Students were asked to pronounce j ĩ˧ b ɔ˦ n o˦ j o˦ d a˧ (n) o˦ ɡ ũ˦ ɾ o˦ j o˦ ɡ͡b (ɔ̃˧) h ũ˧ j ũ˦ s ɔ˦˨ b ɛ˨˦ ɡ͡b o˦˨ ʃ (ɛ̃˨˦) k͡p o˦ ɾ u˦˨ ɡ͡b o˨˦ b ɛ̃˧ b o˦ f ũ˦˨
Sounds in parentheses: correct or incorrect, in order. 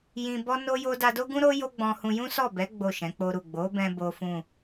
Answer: incorrect: d, correct, correct

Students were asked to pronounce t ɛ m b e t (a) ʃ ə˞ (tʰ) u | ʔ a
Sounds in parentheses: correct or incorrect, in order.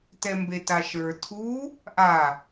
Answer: correct, correct

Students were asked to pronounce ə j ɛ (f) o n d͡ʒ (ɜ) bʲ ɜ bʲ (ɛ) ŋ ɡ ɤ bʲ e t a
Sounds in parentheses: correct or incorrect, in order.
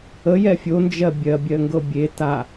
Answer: incorrect: fʲ, correct, incorrect: ɜ

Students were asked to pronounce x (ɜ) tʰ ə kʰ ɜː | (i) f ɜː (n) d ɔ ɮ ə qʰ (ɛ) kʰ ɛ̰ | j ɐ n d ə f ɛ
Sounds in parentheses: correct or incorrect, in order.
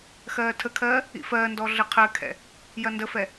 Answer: incorrect: ɜː, incorrect: ḭ, correct, incorrect: ɜ

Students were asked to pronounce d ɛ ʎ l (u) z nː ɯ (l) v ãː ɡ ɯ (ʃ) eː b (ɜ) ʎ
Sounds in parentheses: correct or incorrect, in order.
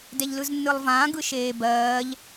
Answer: incorrect: ɯ, incorrect: lˠ, correct, incorrect: ɜː

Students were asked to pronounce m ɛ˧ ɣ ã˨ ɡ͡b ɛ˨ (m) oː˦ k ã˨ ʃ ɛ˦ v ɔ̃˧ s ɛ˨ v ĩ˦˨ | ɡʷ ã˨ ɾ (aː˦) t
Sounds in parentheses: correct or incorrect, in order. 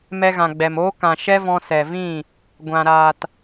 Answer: correct, incorrect: aː˨

